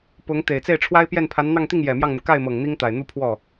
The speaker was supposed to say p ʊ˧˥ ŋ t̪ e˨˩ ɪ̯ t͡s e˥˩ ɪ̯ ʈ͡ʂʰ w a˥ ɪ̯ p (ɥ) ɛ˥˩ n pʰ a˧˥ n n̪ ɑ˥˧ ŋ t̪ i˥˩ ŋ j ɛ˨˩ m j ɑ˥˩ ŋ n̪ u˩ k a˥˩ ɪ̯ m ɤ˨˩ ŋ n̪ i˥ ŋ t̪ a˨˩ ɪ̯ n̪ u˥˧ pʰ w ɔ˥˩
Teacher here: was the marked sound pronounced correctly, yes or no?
no